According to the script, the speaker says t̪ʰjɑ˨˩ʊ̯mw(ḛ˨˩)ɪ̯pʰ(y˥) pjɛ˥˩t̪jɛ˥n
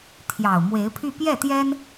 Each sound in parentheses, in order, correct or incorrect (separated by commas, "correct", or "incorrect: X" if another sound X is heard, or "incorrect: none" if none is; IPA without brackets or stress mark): incorrect: e˧˥, incorrect: y˥˧